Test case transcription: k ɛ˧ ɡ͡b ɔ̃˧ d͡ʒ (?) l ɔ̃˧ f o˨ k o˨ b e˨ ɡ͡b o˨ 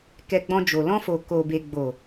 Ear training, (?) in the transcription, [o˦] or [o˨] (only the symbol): o˨